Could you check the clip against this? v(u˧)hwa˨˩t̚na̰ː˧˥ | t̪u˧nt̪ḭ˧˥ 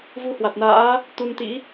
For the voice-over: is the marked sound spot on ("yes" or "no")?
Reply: yes